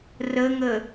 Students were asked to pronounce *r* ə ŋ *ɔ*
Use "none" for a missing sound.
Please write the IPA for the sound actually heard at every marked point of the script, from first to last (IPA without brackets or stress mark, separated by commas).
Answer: r, ə